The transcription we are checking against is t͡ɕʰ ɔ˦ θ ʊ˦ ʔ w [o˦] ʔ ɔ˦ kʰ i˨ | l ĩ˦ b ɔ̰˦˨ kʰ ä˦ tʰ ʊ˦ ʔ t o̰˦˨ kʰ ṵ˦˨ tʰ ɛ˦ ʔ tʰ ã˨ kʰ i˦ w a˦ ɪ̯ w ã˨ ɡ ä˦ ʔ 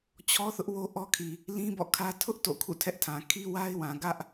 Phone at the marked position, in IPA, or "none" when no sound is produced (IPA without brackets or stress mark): o˦